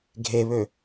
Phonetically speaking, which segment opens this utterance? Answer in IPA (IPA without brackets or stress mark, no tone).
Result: ɡʱ